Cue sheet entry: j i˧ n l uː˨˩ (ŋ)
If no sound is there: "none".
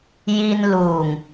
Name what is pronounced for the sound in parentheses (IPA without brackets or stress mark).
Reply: ŋ